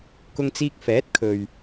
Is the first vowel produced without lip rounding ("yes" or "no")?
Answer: no